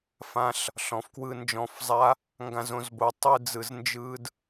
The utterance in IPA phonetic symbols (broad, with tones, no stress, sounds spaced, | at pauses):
f ã˦ ɬ | ɬ ɔ̃˨˦ f k w ɯ˧ n d͡ʒ ɔ̃˧ f zˤ a˦ | ŋ ɡ ã˧ z õ˧ z b o˧ tˤ ɯ˧ d͡z ɯ˧ z n d͡ʒ ɯ˦ d